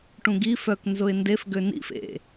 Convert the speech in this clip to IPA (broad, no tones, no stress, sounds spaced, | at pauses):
ʈ ũ ɡ i f œ k n z ʊ ɪ̯ n d e f ɡ ø n ḭ f ḛ